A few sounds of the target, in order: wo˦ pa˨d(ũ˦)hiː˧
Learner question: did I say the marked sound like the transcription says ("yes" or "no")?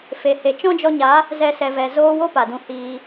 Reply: no